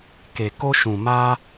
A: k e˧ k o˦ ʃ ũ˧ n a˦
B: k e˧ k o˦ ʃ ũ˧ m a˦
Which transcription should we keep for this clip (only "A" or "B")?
B